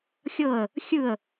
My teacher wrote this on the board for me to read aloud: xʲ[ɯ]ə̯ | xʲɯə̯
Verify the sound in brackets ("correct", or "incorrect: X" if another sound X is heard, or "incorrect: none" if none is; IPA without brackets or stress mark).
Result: incorrect: ɤ